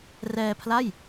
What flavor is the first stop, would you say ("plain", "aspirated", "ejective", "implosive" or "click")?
aspirated